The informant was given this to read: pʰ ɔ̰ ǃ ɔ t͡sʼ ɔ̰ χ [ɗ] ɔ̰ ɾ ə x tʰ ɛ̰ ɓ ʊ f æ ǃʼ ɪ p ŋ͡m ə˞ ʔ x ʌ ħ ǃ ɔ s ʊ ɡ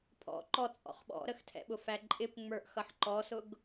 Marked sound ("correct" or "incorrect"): incorrect